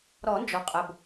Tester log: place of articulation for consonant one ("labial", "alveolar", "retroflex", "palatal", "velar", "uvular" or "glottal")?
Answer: alveolar